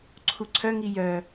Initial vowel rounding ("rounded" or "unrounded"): rounded